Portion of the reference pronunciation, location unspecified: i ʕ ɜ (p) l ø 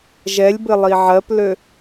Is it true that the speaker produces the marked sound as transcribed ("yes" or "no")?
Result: yes